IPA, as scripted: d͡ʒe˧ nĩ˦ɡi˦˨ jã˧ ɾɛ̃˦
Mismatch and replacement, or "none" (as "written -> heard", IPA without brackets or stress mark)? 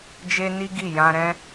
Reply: ĩ˦ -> i˦